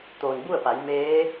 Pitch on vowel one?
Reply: low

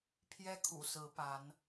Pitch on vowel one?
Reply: high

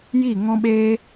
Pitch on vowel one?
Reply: falling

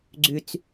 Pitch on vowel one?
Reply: low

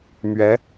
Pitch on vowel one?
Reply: rising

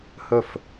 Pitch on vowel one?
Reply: falling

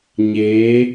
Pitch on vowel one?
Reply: rising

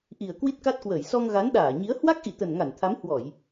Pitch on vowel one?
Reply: low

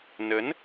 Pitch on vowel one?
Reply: rising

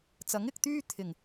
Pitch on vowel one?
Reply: rising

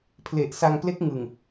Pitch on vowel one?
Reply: low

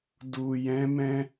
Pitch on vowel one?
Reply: low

